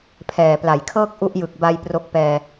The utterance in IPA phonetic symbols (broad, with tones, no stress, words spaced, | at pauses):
pʰɛː˨˩pla˩˦jkʰɤː˥˩k̚ ʔu˦˥ʔjɯ˨˩k̚ba˧j pro˦˥k̚pɛː˧